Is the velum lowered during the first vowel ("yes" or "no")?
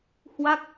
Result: no